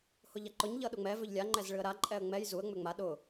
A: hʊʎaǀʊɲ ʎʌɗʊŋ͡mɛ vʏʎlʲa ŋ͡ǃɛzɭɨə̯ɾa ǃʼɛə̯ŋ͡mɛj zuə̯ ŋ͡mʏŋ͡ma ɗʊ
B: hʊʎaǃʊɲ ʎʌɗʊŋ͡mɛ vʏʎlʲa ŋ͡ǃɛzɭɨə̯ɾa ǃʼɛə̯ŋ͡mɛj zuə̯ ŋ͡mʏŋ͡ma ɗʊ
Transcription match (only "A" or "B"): B